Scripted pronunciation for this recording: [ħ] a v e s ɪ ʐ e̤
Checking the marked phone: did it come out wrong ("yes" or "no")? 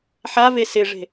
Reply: no